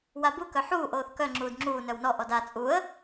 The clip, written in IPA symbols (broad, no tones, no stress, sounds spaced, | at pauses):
w a b u k œ ħ uː ʔ oː θ k œ ŋ͡ǁ uː d ŋ͡ǁ uː n œ w n ɔ ʔ ɔ d a t͡sʼ u ə̯